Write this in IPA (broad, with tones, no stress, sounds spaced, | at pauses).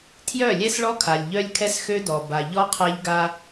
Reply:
tʰ j œ˦˨ lʲ ɛ˦ s ɭ ɔ˦ kʰ a˨ lʲ ʎ œ˦ lʲ kʰ ɛ˦ s x ø˦ d ɔ˨ b a˨ ʎ ɔ˦ qʰ a˦ ʎ ɡ a˦